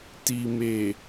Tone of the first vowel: low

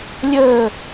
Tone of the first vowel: falling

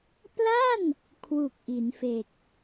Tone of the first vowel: falling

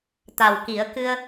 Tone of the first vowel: low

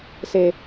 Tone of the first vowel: low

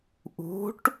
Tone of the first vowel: rising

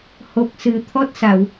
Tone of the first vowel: low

